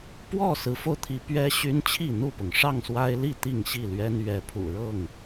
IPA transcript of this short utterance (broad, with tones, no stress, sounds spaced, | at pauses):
p w ɔ˥˨ s ɹ̩˨˦ f o˧ ʊ̯ t̪ʰ i˨˦ p ɥ ɛ˦ ɕ y˦ n t͡ɕʰ i˥˨ n̪ u˥˨ p ʊ˩ ŋ ʂ ɑ˥˨ ŋ s w a˦ ɪ̯ l i˥˨ t̪ i˥˨ ŋ ɕ i˥˨ l ɥ ɛ˦ n ɥ ɛ˨˦ pʰ ṵ˨˩ ɻ ɤ˥˨ ŋ